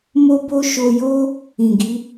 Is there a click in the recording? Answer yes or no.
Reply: no